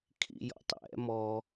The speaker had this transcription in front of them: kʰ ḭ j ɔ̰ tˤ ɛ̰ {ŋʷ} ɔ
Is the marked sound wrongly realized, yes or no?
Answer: yes